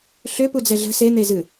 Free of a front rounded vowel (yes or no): no